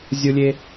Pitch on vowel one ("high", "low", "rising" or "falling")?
high